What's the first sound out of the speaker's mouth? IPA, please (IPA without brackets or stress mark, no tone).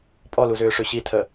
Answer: pʼ